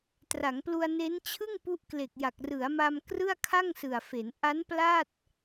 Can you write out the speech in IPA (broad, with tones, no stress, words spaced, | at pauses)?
tra˩˦ŋplu˧a̯ne˦˥n t͡ɕʰɯ˥˩ŋ pu˦˥ʔkle˨˩k̚ja˨˩k̚ rɯ˩˦a̯ma˧m krɯ˥˩a̯kʰa˥˩ŋsɯ˨˩a̯fe˩˦n ʔa˦˥n pla˥˩t̚